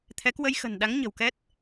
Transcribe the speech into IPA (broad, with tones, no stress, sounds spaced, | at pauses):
t̪ʰ ɛ˨˦ k w ə˧ j x ə̤˨˩ n ɗ a˨˦ ŋ ɲ ə̤˨˩ w k ɛ˦˥ t̚